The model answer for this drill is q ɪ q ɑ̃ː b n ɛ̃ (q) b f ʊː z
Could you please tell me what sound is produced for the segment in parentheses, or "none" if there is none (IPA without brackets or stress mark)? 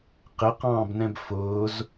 none